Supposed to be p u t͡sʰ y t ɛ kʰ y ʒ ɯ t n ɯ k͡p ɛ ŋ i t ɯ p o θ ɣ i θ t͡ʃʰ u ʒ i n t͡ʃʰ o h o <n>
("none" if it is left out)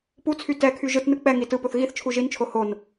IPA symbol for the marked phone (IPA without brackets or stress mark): n